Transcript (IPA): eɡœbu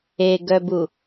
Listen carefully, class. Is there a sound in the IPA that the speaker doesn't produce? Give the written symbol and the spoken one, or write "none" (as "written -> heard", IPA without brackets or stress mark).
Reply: none